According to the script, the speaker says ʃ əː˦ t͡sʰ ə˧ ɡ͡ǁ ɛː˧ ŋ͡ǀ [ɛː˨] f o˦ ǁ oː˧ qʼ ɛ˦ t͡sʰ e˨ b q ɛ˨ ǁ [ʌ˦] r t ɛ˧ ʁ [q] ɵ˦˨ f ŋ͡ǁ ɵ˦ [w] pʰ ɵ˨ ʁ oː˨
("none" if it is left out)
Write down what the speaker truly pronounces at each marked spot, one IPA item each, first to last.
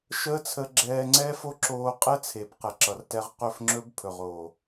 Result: ɛː˦, ʌ˨, q, b

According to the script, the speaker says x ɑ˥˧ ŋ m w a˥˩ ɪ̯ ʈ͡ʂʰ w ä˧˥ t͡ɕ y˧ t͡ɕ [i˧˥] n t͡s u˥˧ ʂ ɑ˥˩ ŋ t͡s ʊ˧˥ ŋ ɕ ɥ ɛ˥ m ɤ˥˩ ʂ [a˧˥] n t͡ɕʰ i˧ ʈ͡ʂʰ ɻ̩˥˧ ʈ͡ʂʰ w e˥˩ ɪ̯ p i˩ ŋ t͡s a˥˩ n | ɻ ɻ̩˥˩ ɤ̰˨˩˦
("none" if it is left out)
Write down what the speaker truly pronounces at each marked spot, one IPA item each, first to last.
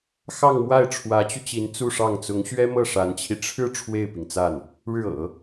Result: i˧˥, a˧˥

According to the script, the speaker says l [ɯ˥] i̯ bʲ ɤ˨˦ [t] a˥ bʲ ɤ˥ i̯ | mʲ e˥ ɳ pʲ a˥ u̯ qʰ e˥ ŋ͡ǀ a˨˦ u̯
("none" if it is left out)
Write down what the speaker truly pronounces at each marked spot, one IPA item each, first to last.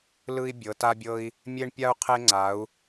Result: ɯ˥, t

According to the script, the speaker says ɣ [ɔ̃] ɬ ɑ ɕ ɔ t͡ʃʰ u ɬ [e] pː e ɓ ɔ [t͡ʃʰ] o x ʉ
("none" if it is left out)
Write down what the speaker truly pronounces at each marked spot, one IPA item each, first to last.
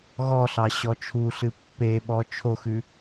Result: ɔ, ɨ, t͡ʃʰ

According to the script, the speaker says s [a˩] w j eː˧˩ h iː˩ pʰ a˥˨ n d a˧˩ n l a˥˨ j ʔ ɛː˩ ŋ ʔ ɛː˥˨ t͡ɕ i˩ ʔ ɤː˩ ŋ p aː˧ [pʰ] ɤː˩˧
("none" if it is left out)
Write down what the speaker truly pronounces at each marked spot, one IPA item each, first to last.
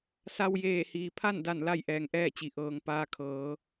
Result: a˧, kʰ

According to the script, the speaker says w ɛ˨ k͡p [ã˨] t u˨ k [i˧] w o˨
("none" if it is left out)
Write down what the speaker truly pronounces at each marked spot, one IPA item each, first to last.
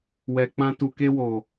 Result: ã˧, e˧

